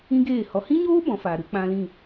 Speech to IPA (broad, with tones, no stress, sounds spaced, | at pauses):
ĩ˦ ɡ eː˦˨ h ɔ˨ h ĩ˦ ɲ oː˦ b ɔ̃˨˦ f aː˨ ɾ ɨ˨˦ k͡p ã˦ l ĩ˦˨